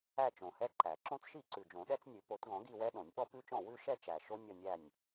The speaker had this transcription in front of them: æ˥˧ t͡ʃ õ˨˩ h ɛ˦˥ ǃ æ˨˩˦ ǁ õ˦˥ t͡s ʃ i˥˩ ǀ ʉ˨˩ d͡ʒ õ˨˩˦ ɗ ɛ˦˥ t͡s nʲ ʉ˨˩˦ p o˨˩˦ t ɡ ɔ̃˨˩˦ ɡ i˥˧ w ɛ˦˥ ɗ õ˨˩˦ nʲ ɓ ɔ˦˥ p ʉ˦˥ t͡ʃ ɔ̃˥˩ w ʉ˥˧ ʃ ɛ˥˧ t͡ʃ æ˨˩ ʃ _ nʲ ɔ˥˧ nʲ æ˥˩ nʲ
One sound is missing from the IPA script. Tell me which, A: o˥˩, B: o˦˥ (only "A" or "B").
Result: B